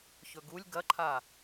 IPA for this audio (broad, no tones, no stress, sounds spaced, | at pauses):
ç ɵ ɡ u lʲ ɡ ɐ ǃʰ a